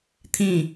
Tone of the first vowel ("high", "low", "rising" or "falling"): falling